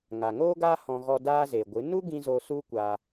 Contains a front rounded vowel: no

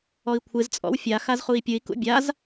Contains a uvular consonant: yes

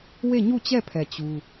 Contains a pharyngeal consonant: no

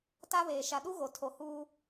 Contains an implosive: yes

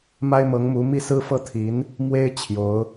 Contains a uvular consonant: no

